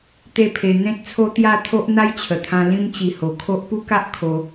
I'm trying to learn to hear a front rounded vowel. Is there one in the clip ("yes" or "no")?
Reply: no